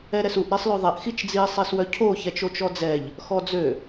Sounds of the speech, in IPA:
ɛ ɾ ɛ s u ʔ ɾ e sˤ l ø ðˤ ɛ ʔ x i t͡ʃ d͡z i sˤ e s w œ cʰ o ç ɛ t͡ʃ o t͡ʃ ɔ d͡z ɛ ʎ | x ɔ d͡z ø

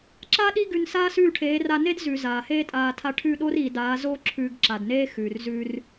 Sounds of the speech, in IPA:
ǁ a˦ ɗ i˦ ɡ ʉ˧ n s aː˦ s ʉː˦˨ ʈʰ eː˨˦ r a˧ n e˦ d z ʉ˨ z aː˨ h eː˦ tʼ aː˧ tʰ a˧ ʈʰ ʉ˦˨ ɗ o˦ r iː˨ d aː˨˦ z oː˦ ǁʰ ʉ˧ ɡ ǁ a˨ d n eː˦ x ʉː˨ r z ʉː˧ r

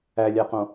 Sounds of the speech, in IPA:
æ lʲ æ q õ

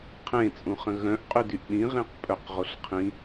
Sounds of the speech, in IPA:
qʰ ẽ t͡sʼ ũ χ ə̃ ɣ œ̃ ʔ qʼ y d y ʔ ɗ ĩ ʁ ĩ q pʼ œ q ʁ o ɬ qʰ ĩ

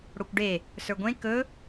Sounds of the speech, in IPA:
ɽ o kʷ ɖ e | s ə˞ ɡʷ ẽ k ɵ

